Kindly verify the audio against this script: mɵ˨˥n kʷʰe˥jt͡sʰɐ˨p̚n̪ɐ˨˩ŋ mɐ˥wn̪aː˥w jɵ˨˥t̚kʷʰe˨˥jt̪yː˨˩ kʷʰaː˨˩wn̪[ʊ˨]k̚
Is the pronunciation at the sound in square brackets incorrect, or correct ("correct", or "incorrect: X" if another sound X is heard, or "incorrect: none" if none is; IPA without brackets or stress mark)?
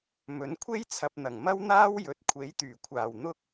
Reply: incorrect: ʊ˥